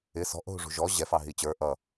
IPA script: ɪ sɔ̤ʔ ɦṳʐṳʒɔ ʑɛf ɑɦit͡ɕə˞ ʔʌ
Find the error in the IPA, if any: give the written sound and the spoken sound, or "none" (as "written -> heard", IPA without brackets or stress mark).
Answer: none